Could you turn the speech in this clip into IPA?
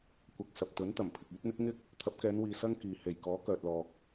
kʷ ɐ˨ k̚ s ɐ˨ p̚ t̪ ɵ˨˥ n t̪ ɐ˨˩ m pʰ ɪ˨ k̚ yː˨˥ t̚ n̪ ɪ˥ k̚ ŋ ɪ˥ k̚ | t̪ʰ ɐ˨˥ p̚ k ɛː˨˧ n w iː˨ s ɐ˥ ŋ k iː˨ h e˨˩ j k ɔː˨˥ k œː˨ t̚ l ɔː˨ k̚

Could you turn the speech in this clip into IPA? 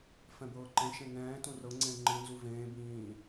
f ɛ̃ b ɤː ǃ ẽ ʃ ẽ ŋ ɛ̃ː t ũ r ɤ ŋ͡ǀ ẽ i̯ ŋ͡ǃ ɯ n z u v ẽː b ĩː

